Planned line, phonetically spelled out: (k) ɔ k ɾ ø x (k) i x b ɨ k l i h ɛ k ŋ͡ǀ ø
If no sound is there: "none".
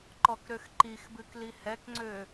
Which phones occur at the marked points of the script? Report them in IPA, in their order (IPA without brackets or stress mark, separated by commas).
ǃ, ǃ